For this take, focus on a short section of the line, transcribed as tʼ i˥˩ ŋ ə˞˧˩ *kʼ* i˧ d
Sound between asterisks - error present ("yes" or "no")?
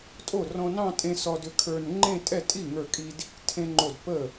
no